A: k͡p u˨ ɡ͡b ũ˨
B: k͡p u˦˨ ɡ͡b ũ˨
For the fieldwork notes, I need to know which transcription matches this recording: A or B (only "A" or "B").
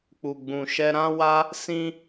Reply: A